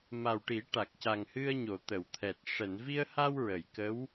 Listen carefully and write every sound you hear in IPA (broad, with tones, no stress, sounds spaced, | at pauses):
m a˨˩ w ʈ i˨˩˦ ʈ a˨˩ k̚ c a˨˩ ŋ h ɨ˧ ə̯ ɲ o˨˩˨ t̪ ə˨˩˨ w t̪ʰ ɛ˨˩ t̚ ʂ ɛ˨˩˨ n v i˧ ə̯ h a˧ w ɹ ə˨˩˨ j k ə˧˥ w